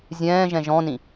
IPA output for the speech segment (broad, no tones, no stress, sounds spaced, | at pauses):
zʲ ɛ̃ː ʒ ɛ̃ ʒ ɔ̃ n ĩ